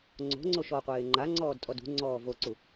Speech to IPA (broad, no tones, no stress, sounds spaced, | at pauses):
ŋ͡ǀ o̤ ŋ͡ǀ o ʃ ɔ qʷ eː ŋ͡ǃ a ŋ͡ǀ ɔː d tʼ ɔ d ṳ ŋ͡ǀ ɔː v o ǀ u